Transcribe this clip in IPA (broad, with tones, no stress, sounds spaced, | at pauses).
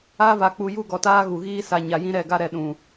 a˦ v a˨ k͡p u˨ j u˦˨ ɡ ɔ˨ t aː˦ ɣ u˨ ɣ iː˦ s a˨ ɲ a˨ j ĩ˦ ɾ ɛ˦˨ ɡ a˦ ɾ ɛ˨ ɗ ũ˨